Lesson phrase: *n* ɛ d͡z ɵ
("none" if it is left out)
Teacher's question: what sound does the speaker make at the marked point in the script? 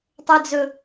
tˤ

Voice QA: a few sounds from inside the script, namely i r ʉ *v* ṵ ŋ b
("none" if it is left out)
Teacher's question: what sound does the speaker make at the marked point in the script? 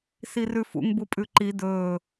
f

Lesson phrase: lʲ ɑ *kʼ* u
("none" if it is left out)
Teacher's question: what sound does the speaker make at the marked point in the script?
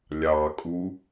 kʼ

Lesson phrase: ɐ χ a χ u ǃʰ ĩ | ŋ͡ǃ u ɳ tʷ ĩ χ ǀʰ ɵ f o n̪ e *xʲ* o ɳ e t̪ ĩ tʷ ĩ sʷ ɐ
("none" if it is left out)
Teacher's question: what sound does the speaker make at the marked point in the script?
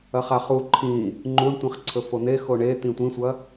x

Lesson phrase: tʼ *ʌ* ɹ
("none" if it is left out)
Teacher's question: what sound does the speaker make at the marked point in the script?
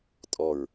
ɔ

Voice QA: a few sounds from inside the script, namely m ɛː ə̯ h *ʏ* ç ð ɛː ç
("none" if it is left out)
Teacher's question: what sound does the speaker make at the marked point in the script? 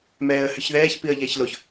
ʏ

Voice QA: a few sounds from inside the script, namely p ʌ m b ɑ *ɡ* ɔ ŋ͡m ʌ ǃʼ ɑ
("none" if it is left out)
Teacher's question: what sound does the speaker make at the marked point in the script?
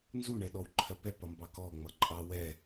k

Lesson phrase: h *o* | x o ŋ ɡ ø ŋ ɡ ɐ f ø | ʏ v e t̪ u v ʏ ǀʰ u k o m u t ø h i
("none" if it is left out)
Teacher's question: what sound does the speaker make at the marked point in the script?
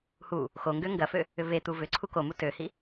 u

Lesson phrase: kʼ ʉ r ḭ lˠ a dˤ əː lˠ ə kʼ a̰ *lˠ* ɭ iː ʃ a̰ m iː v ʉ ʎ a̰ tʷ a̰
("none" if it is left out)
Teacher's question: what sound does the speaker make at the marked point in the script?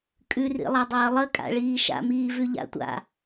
none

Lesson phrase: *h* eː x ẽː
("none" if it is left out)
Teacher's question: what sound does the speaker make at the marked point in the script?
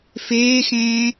f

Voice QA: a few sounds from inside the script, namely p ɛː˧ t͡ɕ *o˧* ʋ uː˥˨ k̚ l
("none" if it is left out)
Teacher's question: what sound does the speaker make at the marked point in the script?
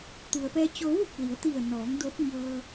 o˧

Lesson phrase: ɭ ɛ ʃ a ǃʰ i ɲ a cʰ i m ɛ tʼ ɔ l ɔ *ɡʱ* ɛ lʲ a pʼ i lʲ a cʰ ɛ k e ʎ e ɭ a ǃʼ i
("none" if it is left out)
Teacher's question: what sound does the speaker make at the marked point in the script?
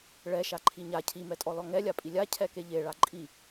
ŋ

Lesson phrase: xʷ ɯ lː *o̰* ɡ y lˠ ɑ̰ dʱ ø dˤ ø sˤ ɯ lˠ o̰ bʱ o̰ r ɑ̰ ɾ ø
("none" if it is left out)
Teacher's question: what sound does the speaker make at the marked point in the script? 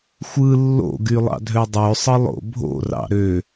o̰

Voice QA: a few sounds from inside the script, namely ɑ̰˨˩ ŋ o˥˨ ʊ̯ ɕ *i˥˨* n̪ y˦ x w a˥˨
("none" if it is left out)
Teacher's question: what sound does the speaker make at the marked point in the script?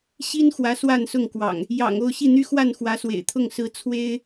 i˥˨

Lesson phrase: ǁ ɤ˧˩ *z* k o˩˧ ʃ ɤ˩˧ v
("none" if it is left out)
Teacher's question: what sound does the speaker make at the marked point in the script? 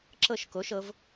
ʃ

